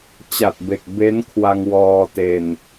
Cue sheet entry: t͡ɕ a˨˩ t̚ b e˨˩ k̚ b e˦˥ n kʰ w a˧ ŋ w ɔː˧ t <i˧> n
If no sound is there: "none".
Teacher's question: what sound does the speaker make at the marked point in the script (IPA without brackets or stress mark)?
e˧